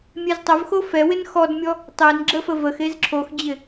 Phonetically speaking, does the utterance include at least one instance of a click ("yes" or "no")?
yes